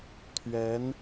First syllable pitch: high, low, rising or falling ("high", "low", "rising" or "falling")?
rising